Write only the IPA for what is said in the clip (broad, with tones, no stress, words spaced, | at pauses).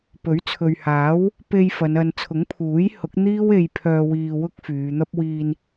pɵ˨˥ɥt͡sʰɵ˨ɥhaː˨˥w | pe˧j fɐ˨˧nɐ˧n t͡sʰʊ˨˥ŋpʰuː˨˥j hʊ˨˥k̚ n̪iː˥w e˧j pʰœː˧wiː˧wʊ˥k̚ fyː˨˧n̪ɐ˥p̚ wiː˧n